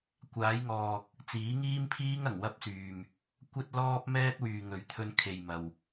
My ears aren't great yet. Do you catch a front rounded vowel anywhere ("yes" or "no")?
yes